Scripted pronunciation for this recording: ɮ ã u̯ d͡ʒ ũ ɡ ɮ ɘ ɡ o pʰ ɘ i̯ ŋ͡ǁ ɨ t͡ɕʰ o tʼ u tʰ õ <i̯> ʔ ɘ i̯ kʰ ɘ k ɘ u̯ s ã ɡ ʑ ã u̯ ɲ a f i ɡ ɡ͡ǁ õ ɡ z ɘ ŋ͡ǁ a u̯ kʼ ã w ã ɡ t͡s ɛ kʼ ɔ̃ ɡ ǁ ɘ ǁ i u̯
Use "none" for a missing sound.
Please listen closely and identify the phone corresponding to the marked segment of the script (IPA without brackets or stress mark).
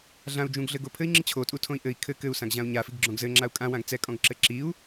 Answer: i̯